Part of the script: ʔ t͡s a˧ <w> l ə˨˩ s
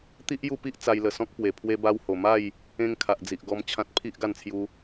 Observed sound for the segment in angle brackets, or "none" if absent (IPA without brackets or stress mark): j